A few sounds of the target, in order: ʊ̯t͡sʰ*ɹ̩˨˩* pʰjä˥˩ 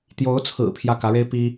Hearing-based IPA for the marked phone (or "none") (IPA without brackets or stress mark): ɹ̩˨˩